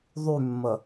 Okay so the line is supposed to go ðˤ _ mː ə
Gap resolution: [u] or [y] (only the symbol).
y